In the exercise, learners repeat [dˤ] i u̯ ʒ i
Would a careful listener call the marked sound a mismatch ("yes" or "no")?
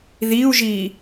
yes